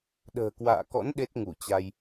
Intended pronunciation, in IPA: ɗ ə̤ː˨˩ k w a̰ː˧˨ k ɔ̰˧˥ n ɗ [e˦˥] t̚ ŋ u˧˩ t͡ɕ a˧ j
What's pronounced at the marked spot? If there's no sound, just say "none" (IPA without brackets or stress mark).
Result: e˦˥